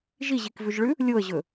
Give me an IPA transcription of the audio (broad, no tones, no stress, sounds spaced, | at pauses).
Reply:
ʒ i ʑ i k v ʉ ʒ ɭ ʉ | lʲ o ə̯ ʑ ɵ